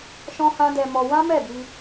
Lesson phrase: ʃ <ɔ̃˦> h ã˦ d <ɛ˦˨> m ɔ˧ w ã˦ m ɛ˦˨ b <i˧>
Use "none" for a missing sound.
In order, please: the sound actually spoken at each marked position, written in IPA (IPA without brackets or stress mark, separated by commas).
ɔ̃˦, ɛ˧, i˧